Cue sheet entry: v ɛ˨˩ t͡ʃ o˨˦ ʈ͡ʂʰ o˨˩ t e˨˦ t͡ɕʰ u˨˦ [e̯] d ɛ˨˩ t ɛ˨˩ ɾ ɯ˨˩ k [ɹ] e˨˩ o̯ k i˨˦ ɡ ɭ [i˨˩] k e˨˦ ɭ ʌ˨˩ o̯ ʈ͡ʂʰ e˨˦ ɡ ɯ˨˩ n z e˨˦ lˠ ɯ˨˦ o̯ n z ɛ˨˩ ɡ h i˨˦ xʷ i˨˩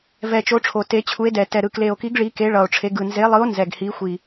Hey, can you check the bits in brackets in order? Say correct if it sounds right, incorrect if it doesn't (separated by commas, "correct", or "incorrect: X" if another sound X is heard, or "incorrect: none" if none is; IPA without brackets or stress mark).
correct, incorrect: l, incorrect: i˨˦